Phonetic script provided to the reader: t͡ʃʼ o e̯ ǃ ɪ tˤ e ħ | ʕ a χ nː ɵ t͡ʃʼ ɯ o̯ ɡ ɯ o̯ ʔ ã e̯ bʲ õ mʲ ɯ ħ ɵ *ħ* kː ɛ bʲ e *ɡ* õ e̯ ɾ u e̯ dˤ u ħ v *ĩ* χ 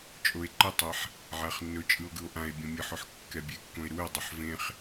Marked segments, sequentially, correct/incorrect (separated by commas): correct, incorrect, incorrect